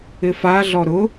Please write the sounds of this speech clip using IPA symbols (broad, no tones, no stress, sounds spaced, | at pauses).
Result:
ɪ f a ɮ ɔ ɾ ʊ